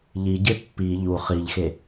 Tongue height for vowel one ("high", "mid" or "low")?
high